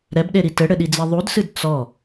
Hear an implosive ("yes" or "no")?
yes